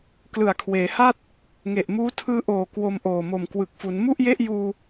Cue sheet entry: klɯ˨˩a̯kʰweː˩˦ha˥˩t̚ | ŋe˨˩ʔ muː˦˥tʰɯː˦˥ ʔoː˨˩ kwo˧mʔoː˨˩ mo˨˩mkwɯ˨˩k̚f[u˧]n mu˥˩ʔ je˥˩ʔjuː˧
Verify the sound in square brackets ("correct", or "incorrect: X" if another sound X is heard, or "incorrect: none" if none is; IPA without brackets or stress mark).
incorrect: u˩˦